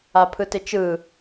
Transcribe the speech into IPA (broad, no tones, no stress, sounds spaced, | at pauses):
a pʰ ɯ t ɪ t͡ʃ ɯ